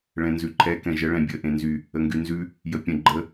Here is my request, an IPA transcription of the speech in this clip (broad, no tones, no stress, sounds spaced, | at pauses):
ɭ ɛ̃ n z ʉ ǃʰ ɛ k ɛ̃ ʒ ə ɭ ɛ̃ bʲ ə ʔ ẽ n z y | ə ŋ ɡ y n z ʉ | j ə pʲ ə̃ ɡ͡ǃ ə